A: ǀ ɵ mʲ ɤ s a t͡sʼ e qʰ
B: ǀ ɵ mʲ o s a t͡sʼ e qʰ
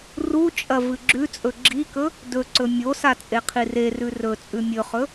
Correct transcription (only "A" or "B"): B